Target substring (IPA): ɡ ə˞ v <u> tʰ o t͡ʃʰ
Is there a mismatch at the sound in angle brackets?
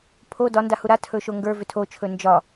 yes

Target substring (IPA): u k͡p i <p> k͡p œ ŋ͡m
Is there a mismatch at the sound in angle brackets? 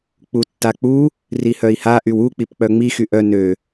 no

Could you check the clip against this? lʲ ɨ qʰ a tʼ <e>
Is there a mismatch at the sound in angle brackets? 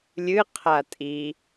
yes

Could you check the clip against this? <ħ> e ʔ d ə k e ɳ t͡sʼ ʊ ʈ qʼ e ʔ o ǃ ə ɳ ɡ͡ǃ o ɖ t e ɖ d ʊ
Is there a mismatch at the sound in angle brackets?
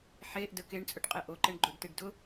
no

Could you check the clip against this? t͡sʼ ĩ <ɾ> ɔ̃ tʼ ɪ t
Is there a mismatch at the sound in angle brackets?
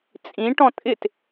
yes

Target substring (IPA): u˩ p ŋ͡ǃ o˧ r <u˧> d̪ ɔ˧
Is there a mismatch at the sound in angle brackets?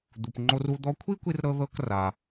no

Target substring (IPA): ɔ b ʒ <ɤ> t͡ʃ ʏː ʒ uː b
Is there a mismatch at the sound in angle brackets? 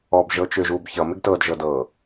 no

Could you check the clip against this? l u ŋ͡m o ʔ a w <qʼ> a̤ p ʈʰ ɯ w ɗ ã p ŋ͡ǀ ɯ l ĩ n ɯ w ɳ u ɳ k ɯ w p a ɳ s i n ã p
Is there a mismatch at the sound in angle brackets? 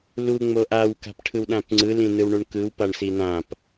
yes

